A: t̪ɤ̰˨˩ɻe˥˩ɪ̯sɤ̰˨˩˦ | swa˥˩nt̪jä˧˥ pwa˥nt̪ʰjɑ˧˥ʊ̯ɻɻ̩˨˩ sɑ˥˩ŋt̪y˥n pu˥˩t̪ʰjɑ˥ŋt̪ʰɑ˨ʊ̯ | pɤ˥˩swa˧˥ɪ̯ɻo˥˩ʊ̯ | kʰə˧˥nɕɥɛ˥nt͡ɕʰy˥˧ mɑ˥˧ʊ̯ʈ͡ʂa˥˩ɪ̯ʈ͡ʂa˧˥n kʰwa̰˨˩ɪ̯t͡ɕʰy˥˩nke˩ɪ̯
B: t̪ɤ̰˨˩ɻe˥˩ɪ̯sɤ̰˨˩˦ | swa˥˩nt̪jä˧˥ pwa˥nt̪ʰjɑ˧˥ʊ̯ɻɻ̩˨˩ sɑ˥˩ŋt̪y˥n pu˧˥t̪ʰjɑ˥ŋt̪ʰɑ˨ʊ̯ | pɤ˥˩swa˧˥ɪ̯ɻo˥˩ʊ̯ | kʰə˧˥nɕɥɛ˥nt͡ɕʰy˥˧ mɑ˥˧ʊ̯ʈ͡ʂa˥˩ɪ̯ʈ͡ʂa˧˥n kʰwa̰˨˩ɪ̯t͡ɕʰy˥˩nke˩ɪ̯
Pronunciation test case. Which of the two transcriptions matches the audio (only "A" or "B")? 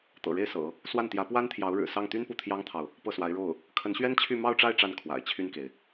A